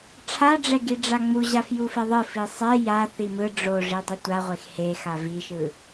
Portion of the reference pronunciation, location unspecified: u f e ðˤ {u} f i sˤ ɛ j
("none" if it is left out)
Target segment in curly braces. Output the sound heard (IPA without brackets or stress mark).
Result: ɯ